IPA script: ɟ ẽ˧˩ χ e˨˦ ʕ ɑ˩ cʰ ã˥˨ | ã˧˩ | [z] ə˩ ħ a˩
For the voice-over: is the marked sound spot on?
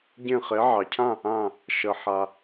no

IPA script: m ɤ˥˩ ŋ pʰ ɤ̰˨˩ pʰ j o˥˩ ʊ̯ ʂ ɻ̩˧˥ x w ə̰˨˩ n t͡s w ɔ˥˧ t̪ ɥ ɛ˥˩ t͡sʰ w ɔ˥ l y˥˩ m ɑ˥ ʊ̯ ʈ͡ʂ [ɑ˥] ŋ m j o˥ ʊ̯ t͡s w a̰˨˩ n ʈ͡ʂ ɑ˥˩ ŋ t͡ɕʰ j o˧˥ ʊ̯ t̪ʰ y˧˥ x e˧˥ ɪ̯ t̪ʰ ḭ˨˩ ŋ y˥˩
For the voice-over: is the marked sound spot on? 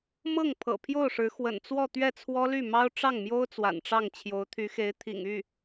no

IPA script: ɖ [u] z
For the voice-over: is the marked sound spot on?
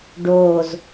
no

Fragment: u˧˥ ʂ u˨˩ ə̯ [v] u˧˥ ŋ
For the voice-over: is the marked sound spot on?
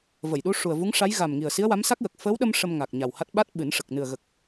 yes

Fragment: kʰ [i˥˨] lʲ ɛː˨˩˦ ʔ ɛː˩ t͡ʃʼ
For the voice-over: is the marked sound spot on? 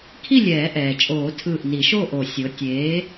yes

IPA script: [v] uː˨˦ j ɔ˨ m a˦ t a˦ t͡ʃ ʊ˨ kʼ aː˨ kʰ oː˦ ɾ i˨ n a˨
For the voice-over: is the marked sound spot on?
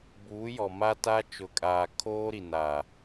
no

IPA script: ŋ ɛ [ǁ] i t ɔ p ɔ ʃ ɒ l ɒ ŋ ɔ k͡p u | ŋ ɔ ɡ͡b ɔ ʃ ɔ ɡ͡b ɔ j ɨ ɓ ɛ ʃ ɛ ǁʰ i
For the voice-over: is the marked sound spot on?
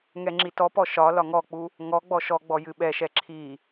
no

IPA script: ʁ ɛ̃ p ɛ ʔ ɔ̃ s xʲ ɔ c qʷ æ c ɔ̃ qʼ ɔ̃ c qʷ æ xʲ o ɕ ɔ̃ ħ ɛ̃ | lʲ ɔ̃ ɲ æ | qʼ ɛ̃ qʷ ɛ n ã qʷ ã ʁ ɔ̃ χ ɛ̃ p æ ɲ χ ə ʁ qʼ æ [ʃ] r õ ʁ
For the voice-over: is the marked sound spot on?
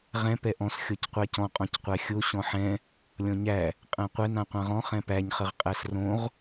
no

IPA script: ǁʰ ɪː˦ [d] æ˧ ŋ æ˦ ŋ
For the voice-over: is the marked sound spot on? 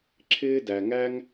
yes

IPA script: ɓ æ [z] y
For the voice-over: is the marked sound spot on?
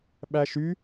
no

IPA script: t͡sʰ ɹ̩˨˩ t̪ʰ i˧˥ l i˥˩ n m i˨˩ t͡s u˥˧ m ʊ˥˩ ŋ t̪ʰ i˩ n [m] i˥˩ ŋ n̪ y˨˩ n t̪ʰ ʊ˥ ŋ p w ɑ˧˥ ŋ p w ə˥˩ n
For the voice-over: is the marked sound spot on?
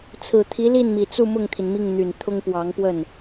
yes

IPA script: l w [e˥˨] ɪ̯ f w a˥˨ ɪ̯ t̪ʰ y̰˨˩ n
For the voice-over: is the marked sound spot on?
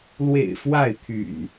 no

